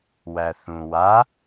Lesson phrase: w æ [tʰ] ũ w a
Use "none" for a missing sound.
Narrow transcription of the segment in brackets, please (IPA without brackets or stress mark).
θ